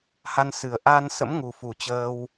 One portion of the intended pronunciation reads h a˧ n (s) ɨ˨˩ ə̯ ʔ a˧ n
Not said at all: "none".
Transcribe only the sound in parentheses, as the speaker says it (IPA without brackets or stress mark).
s